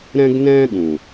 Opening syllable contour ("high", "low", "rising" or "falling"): high